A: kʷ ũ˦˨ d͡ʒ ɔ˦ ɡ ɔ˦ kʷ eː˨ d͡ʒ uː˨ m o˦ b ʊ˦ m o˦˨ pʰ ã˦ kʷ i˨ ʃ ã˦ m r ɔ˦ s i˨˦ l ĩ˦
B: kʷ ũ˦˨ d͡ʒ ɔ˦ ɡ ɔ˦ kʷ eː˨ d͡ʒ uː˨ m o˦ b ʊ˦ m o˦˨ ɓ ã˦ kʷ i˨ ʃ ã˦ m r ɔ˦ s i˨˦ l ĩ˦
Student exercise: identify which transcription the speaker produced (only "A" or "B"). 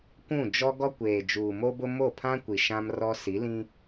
A